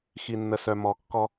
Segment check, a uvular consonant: absent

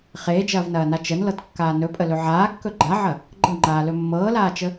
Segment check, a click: present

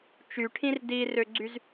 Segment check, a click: present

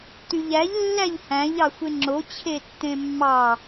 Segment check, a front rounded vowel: present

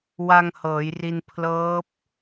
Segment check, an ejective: absent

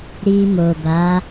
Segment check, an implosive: absent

